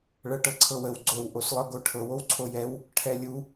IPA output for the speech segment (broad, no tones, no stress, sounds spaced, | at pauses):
ɭ ɤ ʈ ɤ ǀʰ ɤ w ə w ɡ͡ǀ o w ʔ o s lˠ ɤ ɡ o ʈʰ ɤ w o w ǀʰ o j ɛ w | ʈʰ ɛ lʲ u